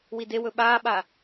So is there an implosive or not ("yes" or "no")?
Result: yes